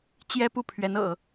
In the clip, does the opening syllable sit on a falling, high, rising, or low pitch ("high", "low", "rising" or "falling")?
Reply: high